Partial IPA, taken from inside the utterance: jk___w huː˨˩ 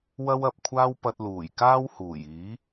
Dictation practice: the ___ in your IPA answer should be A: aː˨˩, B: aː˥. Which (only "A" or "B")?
B